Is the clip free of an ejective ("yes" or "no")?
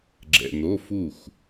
yes